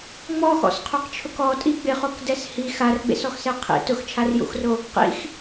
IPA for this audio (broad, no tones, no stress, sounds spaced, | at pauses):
ŋ͡m ɔ x ɔ̰ s qʰ o q t͡ʃʰ ʊ k ɔ tʼ i ɡ͡b ɪ χ o k d ɛ s h i x a r ɡ͡b ḛ s ɔ x s ɛ qʰ ḭ t ʊ x t͡ʃʰ a r j ṵ x r o | q ḭ x